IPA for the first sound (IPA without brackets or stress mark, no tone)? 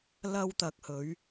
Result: l